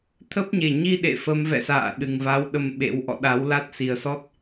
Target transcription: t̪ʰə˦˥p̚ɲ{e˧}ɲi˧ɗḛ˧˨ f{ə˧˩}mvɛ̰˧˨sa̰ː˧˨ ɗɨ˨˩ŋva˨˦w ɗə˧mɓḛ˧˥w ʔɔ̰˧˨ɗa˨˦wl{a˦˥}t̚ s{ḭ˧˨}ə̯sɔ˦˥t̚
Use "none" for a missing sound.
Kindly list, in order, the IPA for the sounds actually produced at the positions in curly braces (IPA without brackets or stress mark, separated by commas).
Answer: e˨˩, ə˨˦, a˦˥, i˨˩